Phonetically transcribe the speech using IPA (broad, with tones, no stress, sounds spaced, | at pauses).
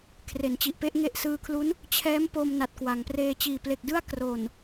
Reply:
kʰ r e˩˦ n t͡ɕ i˨˩ ʔ p e˥˩ ʔ ŋ e˥˩ ʔ s ɯː˧ kʰ l u˦˥ n | t͡ɕʰ ɛː˦˥ m p o˧ m n a˨˩ t̚ k w a˩˦ ŋ p r eː˧ t͡ɕ iː˨˩ p l e˨˩ k̚ d ɯ˥˩ a̯ k r o˨˩ n